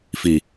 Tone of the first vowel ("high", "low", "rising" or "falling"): low